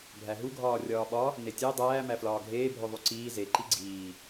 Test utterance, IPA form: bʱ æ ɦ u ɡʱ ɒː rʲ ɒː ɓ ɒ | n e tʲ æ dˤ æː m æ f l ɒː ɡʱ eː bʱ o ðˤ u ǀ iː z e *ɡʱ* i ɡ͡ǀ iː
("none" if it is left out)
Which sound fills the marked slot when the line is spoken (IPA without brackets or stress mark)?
ǃ